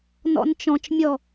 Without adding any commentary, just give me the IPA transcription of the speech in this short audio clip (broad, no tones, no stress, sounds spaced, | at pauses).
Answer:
n ɔ̰ n t͡ʃ ɔ̃ t͡ʃ mʲ ɔ